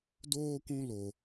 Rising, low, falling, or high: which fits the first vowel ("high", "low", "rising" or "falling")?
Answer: high